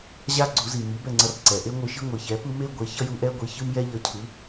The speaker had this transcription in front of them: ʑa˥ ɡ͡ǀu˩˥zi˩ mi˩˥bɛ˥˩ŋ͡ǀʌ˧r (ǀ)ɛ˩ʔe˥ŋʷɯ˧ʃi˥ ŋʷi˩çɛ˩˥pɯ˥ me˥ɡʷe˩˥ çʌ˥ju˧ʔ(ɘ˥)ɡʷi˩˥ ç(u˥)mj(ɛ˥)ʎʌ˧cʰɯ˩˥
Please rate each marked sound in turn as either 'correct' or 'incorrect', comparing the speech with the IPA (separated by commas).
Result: correct, incorrect, incorrect, correct